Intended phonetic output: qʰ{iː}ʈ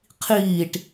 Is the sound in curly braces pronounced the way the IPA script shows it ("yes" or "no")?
yes